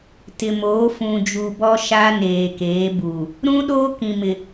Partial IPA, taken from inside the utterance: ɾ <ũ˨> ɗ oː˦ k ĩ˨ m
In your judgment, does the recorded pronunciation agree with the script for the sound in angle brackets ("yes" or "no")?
no